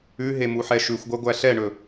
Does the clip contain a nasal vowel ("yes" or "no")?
no